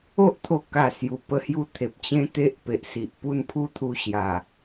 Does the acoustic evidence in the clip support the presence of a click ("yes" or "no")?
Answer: no